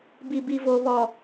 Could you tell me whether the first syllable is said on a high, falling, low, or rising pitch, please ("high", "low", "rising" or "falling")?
low